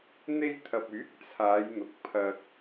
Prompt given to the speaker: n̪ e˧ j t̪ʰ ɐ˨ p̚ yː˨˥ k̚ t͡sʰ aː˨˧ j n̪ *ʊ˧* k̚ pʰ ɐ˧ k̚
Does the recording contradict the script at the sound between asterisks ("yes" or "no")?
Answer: yes